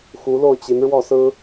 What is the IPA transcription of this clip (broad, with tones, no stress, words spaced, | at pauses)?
xu˧˥lo˥˩ʊ̯t͡ɕi˧˥n ɻwɔ˥˩sɹ̩˥